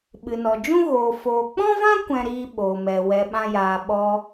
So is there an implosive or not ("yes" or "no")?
yes